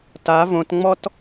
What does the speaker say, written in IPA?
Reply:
ta võtŋ͡mɔt

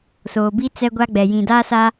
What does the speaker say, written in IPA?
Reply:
soː˨bi˦ t͡sɛ˦ɡʷa˦ɡ͡bɛ˨ jĩ˨daː˦sa˦

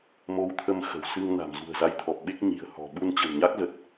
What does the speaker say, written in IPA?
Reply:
mo˧wt̪ʰə˧m xə̤˨˩w sɨ˧ŋ na̤˨˩mzṳ˨˩ə̯za˧jt̪ʰɔ˨˩p̚ ɓe˦˥k̚ɲi̤˨˩ə̯ hɔ̤˨˩ ɓu˧nt͡ɕə̤˨˩nɲa˦˥k̚ zə˨˩t̚

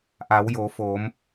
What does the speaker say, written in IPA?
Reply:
ʔa˩˧wjo˩˧foː˩˧m

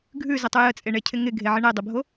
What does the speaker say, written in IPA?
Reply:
ɡʱʉzətˤʉ jət͡sʼeɳecʰɪ ŋɪɡʱeʕɪ ɳedˤɪbʱo

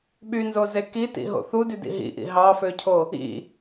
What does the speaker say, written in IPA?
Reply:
ɓynzoze kitḭɦo̰ θudydḭ ɦḭʔḭ ɦɑføcʰo | ḭ

